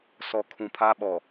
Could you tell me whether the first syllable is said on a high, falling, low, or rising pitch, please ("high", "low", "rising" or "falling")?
low